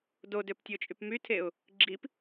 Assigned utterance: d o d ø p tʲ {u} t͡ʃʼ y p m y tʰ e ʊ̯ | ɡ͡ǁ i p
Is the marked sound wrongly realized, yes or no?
yes